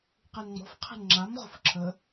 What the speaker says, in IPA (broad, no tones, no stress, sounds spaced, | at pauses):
q i n ŋ͡m ɔ̤ f qʰ i̤ n ŋ͡ǁ a m ʁ o̤ f ǁʰ ə